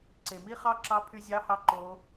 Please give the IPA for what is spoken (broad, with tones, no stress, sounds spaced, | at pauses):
ǀ e˩ m i˥ χ ɑ˥ ǁ ɑ˧˥ pʰ y˧ zʲ ɑ˧˥ h ɑ˧ ǃ o˩˧